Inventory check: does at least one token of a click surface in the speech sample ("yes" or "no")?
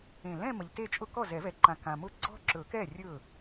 yes